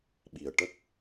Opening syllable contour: low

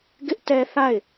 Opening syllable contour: high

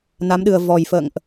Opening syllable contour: rising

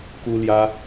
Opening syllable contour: high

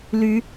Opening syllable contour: rising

